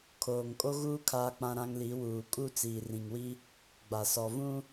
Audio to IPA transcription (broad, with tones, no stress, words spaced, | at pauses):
kʰoː˨ŋkʼo˦ɣuː˦ kʰaː˦k͡pã˦ɾã˦ŋli˨˦ wuː˨kʼu˦ t͡siː˨rĩ˨ŋwi˦ | ɡ͡ba˨sɔ˨vũ˦